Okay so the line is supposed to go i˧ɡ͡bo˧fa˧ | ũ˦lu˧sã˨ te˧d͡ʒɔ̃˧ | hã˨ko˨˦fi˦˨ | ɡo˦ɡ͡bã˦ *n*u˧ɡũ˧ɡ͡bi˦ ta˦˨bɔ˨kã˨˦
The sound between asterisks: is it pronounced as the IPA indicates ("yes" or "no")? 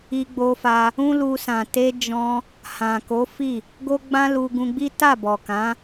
no